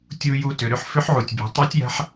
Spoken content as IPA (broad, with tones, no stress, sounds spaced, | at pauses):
tʲ u˧ j u˧ t ʏ˩ ɾ ʏ˥ ħ f ʏ˧˥ ħ ʕ u˩ tʲ bʲ ɛ̤˩˧ tˤ i˧˥ tʲ j a̤˧˥ ħ